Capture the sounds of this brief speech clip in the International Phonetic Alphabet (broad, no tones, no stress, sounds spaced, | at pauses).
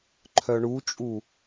ǃʰ œ ɳ u t͡ʃʼ u